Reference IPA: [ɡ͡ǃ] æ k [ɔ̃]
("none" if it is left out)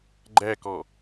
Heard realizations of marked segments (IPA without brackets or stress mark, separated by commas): ɡ͡ǃ, ɔ